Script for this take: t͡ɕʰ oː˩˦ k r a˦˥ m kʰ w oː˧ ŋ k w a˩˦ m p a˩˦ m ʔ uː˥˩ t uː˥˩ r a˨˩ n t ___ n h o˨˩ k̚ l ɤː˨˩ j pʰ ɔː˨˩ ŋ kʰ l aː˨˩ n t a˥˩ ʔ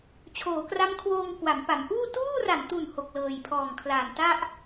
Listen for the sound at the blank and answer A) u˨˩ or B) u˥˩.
A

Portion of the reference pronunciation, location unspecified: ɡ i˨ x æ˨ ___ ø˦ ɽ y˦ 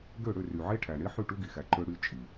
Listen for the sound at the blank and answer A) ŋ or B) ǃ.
B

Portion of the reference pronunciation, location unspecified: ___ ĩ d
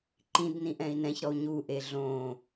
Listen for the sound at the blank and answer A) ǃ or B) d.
A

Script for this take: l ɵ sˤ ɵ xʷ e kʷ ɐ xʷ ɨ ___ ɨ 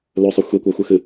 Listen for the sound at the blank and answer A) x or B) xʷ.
A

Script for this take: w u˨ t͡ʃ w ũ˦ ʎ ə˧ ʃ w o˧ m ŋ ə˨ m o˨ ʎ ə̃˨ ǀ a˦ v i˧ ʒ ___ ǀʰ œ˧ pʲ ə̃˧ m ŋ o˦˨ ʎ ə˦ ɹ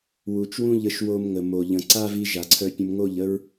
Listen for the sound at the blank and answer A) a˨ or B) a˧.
A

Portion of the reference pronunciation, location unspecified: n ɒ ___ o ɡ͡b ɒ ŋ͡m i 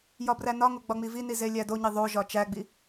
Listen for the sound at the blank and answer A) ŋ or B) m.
A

